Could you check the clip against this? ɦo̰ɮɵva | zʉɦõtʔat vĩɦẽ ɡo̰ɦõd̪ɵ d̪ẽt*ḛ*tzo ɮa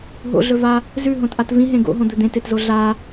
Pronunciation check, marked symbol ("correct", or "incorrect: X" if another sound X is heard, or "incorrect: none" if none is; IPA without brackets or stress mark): incorrect: e